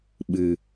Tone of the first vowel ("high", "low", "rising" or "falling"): low